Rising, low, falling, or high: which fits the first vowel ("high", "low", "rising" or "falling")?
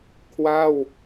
falling